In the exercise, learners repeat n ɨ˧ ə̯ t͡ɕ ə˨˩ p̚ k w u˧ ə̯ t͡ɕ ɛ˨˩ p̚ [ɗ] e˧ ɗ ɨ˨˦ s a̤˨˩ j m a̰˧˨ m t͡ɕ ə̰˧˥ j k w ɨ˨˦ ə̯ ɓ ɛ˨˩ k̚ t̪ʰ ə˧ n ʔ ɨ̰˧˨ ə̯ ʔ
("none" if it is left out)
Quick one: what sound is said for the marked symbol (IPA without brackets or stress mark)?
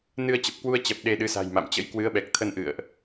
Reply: ɗ